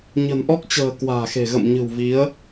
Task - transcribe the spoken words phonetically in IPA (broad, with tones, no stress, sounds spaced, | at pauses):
ɲ ə̤˨˩ n ʔ ɔ˦˥ k̚ t͡ɕ ə̤ː˨˩ k w a̤ː˨˩ x e̤˨˩ ɣ ə̰˧˨ m ɲ ɨ̤˨˩ w v i˨˦ ə̯